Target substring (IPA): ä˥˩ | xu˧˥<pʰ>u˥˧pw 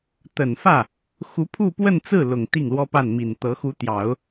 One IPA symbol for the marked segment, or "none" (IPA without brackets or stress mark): pʰ